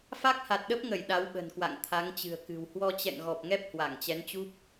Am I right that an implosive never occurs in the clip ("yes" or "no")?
no